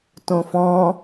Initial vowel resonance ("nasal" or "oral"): nasal